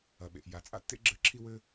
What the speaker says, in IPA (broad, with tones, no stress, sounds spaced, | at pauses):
ɐ˨ ɓ ḛ˨ ʔ j a˨ t͡sʼ a̰˦ tː ḛ˦ ɡ͡ǁ ɘ˨˦ ǁʰ i˧ w ɘ˧